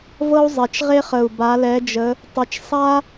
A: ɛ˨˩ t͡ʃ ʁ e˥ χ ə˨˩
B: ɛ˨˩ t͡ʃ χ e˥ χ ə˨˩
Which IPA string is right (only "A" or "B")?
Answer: A